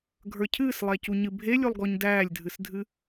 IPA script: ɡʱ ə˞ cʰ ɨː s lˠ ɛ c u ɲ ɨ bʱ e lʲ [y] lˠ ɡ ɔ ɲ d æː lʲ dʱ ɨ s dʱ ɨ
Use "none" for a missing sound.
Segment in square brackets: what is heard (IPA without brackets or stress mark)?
u